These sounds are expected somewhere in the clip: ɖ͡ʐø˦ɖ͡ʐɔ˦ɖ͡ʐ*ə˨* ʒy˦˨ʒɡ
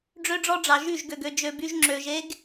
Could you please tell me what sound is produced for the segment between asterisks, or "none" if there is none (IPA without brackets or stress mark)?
ɑ˨